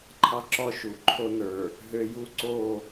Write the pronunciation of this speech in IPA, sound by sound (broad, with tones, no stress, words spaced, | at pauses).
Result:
ǃʰɑ˦ǁɔ˦ ʃu˨ ǃʰo˦nə˞˨ | ɦø˦ ju˦ǀo˦˨